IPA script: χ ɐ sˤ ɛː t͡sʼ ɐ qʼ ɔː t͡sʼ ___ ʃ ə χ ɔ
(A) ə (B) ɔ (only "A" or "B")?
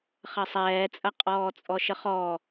B